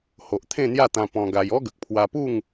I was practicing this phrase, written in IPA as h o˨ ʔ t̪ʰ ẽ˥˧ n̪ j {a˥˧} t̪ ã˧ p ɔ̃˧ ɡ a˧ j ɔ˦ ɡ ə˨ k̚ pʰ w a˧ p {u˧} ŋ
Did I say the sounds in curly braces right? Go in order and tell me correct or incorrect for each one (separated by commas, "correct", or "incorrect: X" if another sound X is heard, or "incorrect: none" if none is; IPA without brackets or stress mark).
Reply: correct, incorrect: u˥˧